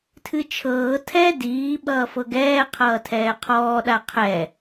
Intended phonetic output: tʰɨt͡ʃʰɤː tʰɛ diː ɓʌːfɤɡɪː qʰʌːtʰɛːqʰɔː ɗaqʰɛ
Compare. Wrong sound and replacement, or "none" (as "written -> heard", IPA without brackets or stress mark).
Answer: ɪː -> ɛː